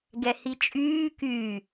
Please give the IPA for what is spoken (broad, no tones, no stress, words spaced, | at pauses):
ɡɛhit͡ʃʼyː ky